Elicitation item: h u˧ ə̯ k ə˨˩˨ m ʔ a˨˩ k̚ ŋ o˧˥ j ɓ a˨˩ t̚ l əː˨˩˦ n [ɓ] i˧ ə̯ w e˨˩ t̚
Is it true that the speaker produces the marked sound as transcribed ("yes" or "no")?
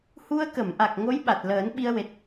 yes